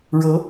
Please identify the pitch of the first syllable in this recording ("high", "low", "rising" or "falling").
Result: rising